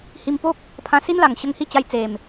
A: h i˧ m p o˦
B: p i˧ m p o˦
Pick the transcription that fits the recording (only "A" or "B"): A